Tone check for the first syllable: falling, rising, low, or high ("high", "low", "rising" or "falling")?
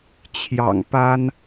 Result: low